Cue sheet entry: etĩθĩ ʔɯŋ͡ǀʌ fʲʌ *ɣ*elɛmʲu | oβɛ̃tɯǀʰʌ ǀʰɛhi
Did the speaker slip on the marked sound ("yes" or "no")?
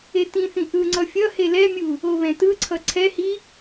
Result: yes